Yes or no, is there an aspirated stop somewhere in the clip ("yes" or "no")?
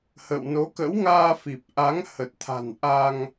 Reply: yes